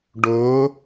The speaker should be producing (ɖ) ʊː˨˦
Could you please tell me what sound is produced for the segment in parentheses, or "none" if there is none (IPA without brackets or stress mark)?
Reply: ɖ